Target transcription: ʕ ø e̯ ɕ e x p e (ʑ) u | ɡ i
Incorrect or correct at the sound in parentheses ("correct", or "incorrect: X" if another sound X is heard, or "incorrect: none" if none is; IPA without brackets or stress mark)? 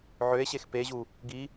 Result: correct